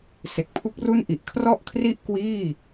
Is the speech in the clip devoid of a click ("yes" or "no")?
yes